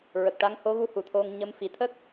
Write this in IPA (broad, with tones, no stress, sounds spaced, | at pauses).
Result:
ɹ ə˨˩ k̚ ʈ a˧˥ ŋ h o˧˥ ɣ u˧˥ h u˨˩ t̪ʰ o˧ ŋ ɲ ə˧˥ m f i˨˩˦ t̪ʰ ə˦˥ k̚